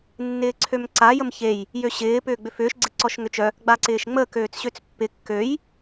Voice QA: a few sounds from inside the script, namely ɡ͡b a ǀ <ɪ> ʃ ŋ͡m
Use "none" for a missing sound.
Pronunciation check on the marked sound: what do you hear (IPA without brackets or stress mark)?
ɪː